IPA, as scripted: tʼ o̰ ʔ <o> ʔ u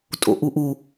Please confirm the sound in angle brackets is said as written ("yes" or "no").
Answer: no